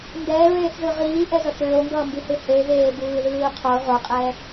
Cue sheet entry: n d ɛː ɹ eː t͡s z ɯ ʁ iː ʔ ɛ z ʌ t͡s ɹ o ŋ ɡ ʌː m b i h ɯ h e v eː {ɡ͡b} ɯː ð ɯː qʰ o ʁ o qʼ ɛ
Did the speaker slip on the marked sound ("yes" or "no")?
yes